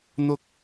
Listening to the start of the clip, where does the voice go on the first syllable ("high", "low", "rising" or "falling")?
high